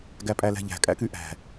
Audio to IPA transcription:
ɡæpʼælæ̤ʎæ̤ kʼæ̰kyʔæ̤

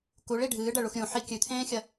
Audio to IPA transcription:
kuɭi ɖʱɨːɖɐɭux ɾʲũħi kʲʉt̪ʰẽːxʲɐ

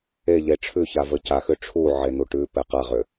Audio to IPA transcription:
eʎe ʈ͡ʂʰʉçavə caxʏ ʈ͡ʂʰuʕen̪u ʈʉpɛ qaʁʏ

